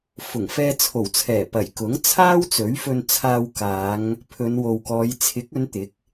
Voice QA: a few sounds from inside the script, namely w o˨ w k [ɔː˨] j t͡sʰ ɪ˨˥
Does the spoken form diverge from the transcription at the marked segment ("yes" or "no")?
yes